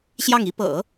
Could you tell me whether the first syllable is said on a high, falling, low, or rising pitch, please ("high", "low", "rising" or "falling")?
falling